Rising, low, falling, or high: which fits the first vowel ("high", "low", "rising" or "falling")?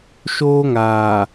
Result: high